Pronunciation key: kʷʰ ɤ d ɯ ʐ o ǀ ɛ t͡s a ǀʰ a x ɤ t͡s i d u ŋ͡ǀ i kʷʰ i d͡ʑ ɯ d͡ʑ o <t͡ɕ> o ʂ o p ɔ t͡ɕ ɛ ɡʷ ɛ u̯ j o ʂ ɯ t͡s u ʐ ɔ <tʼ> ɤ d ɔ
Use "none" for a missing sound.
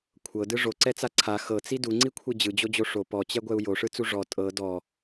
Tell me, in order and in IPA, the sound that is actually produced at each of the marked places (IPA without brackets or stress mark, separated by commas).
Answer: d͡ʑ, tʼ